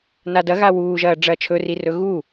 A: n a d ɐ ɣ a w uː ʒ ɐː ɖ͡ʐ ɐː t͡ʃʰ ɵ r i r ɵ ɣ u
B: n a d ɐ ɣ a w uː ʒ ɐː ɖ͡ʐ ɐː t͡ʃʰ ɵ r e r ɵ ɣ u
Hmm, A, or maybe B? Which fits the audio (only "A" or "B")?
A